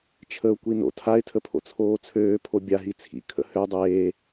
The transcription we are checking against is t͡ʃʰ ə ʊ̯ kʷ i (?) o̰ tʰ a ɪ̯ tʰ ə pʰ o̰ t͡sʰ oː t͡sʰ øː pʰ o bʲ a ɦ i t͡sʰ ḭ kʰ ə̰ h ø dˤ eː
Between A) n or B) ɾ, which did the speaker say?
A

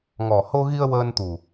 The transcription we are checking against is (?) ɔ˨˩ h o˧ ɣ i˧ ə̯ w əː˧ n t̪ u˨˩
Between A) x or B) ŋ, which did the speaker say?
B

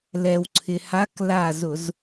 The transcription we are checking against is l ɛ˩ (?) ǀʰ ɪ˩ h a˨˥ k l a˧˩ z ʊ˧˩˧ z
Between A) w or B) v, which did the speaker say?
A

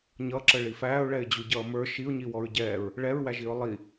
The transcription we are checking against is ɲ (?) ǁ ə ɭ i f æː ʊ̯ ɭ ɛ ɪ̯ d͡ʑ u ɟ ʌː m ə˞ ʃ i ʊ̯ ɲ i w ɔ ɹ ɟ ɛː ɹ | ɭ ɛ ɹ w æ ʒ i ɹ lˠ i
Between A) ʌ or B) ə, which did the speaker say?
A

